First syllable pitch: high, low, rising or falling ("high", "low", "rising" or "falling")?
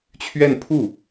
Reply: falling